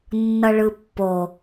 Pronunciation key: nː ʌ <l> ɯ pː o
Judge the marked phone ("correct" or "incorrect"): incorrect